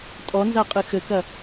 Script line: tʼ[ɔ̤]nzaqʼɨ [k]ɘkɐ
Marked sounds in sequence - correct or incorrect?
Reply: incorrect: ɔ, incorrect: x

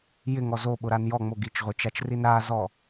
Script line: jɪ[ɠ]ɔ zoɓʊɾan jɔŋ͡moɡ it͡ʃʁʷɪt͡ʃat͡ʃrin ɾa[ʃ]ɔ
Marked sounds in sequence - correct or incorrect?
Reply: incorrect: ŋ, incorrect: z

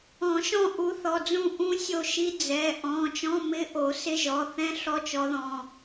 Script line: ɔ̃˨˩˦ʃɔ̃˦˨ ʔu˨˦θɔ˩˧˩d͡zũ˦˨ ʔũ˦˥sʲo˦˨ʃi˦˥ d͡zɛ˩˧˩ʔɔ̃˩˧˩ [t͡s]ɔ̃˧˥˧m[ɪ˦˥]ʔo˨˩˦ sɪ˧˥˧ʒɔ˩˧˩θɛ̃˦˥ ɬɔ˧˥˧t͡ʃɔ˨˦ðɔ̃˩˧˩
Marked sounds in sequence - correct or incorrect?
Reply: incorrect: t͡ʃ, incorrect: ɪ˧˥˧

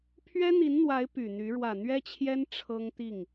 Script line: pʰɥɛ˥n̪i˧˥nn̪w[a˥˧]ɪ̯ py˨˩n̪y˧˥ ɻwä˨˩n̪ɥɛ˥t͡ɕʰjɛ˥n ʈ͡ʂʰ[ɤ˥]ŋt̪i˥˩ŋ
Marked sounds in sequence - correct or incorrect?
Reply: incorrect: a˧˥, correct

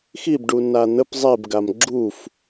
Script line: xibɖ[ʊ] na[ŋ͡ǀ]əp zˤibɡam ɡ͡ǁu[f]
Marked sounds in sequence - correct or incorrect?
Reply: incorrect: u, incorrect: n̪, correct

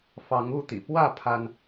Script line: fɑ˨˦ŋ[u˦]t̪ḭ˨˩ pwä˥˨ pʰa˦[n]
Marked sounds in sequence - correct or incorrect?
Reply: incorrect: u˥˨, correct

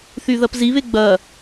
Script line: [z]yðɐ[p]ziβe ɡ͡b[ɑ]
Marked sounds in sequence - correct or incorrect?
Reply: incorrect: θ, correct, incorrect: ɐ

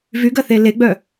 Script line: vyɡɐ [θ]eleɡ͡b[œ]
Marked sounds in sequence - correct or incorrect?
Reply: correct, correct

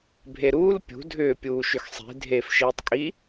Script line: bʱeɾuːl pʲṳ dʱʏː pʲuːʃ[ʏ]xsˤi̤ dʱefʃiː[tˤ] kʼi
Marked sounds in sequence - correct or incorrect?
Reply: correct, correct

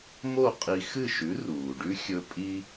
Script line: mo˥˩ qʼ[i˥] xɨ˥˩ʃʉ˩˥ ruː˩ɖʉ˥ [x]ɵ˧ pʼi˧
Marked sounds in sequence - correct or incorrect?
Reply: incorrect: i˧, incorrect: xʲ

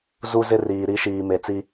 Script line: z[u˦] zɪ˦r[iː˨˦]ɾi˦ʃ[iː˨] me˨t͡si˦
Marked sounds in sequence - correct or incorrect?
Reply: correct, incorrect: iː˨, correct

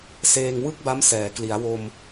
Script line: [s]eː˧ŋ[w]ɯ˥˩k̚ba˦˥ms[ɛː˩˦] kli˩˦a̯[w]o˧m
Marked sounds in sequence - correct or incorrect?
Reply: correct, correct, correct, correct

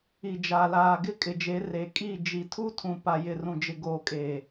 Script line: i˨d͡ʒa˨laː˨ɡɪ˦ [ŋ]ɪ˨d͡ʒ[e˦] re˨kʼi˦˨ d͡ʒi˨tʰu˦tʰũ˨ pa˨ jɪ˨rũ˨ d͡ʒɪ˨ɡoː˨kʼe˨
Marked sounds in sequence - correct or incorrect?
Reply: incorrect: kʼ, incorrect: e˨˦

